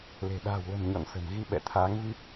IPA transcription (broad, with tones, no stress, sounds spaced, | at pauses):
l e̤˨˩ ɗ a̤ː˨˩ w l ə̤˨˩ m ɲ ɔ̰˧˨ n s ə̤˨˩ m ɣ i˧ ɓ ɛ̰˧˨ t̪ʰ aː˨˦ ŋ v i˦˥ p̚